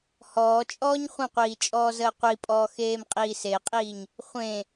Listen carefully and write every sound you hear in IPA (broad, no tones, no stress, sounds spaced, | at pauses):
h ɔː t͡ʃʼ ɔː ɲ χʷ ə̃ qʷ iː t͡ʃʼ ɔː z əː qʷ i pʼ ɔː x eː m qʼ iː s e qʼ iː ɲ | χʷ ẽ